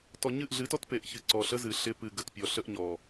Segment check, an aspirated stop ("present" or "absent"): absent